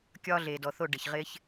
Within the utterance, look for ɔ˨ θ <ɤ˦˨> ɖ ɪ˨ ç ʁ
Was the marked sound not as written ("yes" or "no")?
yes